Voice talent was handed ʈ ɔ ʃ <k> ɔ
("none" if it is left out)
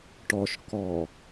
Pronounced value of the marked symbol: k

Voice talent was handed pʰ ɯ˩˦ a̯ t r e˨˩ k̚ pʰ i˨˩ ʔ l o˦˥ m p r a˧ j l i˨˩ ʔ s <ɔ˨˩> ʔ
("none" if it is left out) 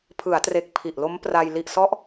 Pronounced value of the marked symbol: ɔ˦˥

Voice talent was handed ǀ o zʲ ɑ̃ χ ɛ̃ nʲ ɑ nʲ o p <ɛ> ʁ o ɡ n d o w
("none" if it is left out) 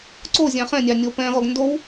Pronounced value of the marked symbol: ɛ̃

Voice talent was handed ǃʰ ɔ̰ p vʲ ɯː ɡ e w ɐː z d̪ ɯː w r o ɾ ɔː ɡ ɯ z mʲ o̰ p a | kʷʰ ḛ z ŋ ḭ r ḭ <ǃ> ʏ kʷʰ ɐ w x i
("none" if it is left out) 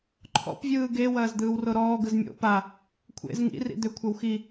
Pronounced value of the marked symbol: d̪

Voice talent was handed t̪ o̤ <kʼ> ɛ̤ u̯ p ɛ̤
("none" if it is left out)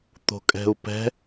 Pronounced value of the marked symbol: kʼ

